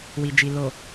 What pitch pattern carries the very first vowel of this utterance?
low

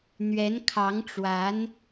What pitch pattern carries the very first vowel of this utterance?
rising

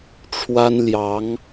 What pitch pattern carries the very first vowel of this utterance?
high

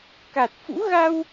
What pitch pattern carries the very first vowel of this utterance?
low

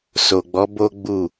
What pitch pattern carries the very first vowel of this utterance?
low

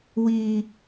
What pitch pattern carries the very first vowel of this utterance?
high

